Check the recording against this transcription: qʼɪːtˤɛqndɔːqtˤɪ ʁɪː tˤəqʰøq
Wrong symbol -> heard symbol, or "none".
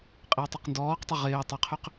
none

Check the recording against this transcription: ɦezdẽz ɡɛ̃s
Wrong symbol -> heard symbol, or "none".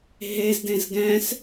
none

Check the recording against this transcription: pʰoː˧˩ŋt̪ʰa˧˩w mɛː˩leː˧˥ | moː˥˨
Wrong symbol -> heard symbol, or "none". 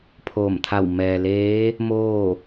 ŋ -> m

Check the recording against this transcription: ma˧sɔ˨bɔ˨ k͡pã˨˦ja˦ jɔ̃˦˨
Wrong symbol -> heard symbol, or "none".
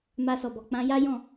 none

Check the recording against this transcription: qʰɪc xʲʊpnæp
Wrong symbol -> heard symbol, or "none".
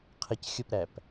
n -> ɾ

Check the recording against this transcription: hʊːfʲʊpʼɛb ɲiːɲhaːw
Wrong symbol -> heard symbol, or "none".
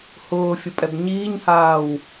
none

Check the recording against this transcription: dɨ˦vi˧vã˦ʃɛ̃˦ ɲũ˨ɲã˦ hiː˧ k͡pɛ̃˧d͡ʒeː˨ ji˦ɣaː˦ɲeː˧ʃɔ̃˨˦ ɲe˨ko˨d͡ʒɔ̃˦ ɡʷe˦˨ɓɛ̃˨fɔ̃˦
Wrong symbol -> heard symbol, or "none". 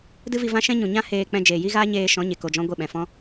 iː˧ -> eː˧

